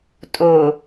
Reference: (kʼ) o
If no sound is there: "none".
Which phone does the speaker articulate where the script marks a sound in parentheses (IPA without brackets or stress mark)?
tʼ